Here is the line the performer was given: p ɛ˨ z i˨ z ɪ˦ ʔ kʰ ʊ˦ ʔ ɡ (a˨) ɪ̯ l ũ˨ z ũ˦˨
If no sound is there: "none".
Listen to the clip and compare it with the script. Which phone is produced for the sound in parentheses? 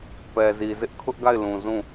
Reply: a˦˨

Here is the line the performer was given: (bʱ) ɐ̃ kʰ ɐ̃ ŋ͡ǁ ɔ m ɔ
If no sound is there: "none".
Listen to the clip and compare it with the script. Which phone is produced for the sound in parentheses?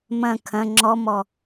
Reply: m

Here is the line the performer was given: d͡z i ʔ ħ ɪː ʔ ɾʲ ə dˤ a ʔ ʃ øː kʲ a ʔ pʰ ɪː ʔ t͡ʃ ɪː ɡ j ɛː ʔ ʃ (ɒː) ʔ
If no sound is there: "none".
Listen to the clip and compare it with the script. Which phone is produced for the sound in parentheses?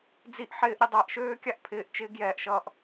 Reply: ʌː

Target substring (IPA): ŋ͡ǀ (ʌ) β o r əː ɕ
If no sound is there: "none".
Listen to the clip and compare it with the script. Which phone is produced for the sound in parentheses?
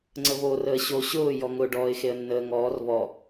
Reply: ə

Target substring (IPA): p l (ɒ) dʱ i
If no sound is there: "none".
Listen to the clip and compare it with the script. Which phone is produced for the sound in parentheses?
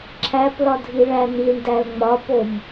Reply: ɒ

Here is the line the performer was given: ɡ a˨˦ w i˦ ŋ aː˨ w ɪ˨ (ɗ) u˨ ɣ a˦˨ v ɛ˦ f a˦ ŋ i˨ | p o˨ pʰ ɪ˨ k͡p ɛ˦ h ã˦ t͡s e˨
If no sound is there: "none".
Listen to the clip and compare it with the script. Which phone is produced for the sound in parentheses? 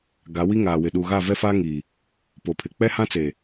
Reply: ɗ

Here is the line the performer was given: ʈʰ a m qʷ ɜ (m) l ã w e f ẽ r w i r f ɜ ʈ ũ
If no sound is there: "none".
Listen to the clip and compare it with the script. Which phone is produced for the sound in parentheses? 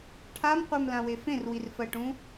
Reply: m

